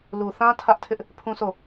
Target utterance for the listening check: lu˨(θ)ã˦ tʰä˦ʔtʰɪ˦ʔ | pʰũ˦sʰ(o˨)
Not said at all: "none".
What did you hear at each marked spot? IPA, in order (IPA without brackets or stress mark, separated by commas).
θ, o˦˨